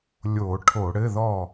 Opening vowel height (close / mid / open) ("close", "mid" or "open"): mid